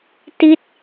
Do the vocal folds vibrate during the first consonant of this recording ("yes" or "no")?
no